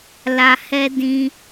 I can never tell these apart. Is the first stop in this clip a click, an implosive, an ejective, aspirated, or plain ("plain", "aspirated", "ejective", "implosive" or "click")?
plain